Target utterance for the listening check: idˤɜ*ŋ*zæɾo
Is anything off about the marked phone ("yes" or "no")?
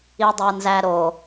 yes